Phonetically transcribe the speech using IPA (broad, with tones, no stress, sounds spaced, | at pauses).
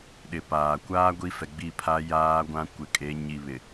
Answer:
ɗ ɪ˨ p aː˨ kʷ aː˦ ɡʷ i˦ f ɛ˨ ɡ͡b i˦˨ pʰ a˦ j aː˦ ɡʷ ã˦ kʷ ɪ˨ kʼ e˨˦ ɲ i˨ β ɪ˨